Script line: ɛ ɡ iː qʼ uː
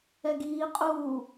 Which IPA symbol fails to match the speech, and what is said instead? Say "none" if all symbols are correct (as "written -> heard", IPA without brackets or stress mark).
none